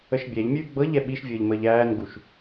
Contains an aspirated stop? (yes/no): no